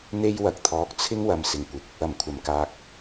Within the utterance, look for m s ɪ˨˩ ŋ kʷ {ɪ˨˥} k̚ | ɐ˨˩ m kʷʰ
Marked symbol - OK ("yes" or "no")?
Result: yes